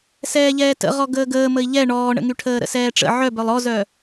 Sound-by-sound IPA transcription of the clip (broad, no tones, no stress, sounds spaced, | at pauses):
s ɛː ʎ ɛː t ə̰ ʁ ɔ ɡ əː ɡ əː m ə i̯ ʎ ɛ ɳ ɔː ɳ ə̰ ŋ y ʈʰ əː ɾ ə̰ s ɛː ʈ͡ʂ ə̰ ʕ œ b œ lˠ ɔ z œ